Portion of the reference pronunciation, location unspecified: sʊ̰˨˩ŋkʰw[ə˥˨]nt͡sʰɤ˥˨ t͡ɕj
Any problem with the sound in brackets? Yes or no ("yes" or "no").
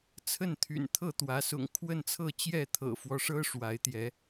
no